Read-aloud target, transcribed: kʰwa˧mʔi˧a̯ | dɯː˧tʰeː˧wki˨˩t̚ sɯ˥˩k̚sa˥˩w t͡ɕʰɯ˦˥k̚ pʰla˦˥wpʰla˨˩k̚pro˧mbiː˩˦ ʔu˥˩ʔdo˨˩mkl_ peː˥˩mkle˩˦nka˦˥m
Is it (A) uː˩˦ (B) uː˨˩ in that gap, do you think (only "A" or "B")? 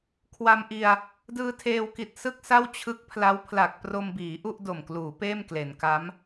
A